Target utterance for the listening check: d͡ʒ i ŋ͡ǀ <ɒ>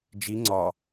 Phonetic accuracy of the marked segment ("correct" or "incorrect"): correct